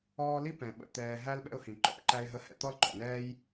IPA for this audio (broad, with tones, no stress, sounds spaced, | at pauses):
ɔː˦ l i˥ p ɛ̃˩ ɓ ə̰˨ t̪ ɛː˨ ɦ æ˥ l ɓ ɛ̰˦ ʊ̯ h ĩ˩ ǃ ɔ̰˦ p ǃ æ˦ ɪ̯ ɦ ə˦ h ɛ̰˦ t̪ ɔ˥ l ǃ ɔ̰˩ n ɛː˥ j